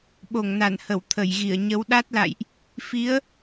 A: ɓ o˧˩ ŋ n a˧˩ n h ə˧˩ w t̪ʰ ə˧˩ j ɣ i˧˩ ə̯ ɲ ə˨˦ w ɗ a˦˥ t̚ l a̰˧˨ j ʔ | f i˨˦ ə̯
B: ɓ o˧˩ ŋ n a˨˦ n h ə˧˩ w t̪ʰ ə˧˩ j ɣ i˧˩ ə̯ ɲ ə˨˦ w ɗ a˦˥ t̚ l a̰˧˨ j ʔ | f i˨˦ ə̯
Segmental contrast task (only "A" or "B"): A